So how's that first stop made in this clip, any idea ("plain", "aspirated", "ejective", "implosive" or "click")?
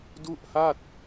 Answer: plain